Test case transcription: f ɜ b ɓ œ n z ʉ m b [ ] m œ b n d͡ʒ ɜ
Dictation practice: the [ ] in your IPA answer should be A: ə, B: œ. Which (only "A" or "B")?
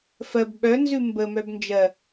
A